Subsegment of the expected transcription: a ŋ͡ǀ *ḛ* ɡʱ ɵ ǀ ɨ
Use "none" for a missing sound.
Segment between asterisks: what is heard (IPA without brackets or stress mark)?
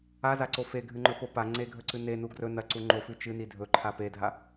e